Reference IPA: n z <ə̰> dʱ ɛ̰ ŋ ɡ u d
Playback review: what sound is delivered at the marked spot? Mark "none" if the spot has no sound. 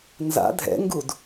a̰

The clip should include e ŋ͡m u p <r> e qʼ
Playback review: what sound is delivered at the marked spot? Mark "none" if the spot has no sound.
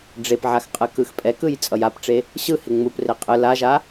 r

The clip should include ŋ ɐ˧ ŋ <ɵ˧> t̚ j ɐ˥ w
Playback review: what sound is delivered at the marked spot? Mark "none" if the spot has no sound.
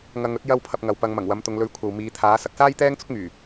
ɵ˥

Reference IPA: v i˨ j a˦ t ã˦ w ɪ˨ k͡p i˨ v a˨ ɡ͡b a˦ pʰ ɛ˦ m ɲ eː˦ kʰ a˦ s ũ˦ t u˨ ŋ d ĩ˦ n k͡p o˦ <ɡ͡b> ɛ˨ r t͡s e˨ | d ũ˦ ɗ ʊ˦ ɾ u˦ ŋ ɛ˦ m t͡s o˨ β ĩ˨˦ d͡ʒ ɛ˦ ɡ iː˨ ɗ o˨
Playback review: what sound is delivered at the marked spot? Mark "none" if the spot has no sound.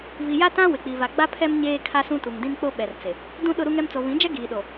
ɓ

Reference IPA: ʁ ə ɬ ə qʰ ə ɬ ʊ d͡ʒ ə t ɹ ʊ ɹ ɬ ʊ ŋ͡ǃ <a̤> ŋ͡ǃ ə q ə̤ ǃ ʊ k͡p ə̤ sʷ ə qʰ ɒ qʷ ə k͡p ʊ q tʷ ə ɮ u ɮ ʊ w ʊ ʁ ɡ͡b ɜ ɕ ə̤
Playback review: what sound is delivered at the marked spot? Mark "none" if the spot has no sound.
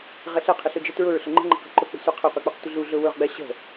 ə̤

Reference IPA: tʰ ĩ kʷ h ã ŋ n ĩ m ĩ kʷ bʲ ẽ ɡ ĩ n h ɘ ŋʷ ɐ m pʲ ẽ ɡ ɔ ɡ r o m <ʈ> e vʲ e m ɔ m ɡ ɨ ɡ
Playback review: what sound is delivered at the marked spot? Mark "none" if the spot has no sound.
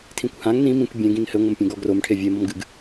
ʈʰ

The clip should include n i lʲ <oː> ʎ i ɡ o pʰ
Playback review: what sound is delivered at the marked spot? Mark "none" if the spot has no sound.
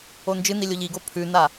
o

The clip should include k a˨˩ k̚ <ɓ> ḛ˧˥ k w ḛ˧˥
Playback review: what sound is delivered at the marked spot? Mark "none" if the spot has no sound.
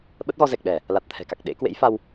ɗ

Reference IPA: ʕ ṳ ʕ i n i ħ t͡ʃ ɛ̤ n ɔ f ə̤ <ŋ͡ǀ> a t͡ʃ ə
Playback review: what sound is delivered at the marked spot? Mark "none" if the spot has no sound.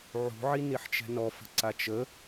ǀ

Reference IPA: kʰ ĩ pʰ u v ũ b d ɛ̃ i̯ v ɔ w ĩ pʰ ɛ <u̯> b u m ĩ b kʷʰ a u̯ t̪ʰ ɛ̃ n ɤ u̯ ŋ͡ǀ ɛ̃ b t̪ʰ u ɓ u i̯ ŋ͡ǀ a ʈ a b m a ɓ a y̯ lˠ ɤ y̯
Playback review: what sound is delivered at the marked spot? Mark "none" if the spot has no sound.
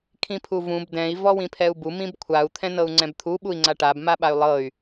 u̯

